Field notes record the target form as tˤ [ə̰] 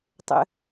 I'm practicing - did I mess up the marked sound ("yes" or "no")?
no